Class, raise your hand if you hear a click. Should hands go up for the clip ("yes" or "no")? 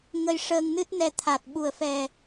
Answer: no